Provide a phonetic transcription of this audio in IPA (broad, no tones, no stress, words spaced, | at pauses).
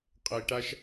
qʼəi̯ʈaʃ